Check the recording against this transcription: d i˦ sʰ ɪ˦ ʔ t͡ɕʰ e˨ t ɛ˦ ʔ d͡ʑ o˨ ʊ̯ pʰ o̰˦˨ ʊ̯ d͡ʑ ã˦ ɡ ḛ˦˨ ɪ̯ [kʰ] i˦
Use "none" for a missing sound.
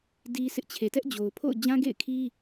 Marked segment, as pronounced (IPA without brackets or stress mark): kʰ